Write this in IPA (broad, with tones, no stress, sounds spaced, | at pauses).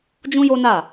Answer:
d͡ʒ ũ˦ j o˦ n a˦˨